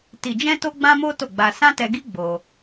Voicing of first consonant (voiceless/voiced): voiceless